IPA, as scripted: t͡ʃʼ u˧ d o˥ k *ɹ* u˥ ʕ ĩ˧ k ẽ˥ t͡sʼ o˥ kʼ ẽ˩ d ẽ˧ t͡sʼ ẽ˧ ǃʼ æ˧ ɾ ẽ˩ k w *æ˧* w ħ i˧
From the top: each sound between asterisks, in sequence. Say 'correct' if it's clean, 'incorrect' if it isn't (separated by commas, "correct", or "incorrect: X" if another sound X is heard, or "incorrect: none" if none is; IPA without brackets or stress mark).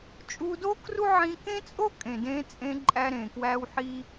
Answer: incorrect: r, correct